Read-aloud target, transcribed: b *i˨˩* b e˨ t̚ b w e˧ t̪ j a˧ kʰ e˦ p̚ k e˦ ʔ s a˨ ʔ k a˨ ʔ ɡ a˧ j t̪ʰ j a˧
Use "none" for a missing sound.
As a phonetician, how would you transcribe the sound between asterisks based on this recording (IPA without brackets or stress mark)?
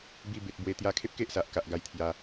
i˧